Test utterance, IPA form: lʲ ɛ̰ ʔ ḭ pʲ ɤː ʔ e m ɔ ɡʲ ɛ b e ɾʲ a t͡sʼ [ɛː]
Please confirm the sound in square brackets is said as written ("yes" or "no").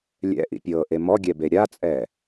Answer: yes